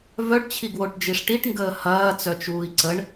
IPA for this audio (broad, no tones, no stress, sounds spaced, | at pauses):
v œ ɖ t͡ɕʰ i ɡ w o ʈ d͡ʒ i ʂ ʈ i ʈ ŋ ɡ əː h ɐː t͡s œ t͡ʃ uː i̯ ǀ ə ɳ